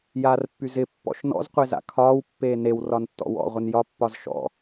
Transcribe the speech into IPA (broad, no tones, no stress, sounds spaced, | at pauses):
j aː r pː y z ɪ pː ɔ̰ ʃ n ɔ̰ z qʷ e z a̰ kʰ ɒː w pː eː n e w r ɒ n tː ɔ̰ w ɔ̰ ʁʷ ɪ n j ɒ pː ɒ z ʃ ɔ̰